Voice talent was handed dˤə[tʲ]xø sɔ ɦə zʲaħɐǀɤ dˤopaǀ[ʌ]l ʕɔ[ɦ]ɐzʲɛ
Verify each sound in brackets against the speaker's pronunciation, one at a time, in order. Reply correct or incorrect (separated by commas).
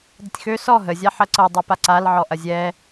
correct, incorrect, incorrect